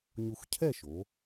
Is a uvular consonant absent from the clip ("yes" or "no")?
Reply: yes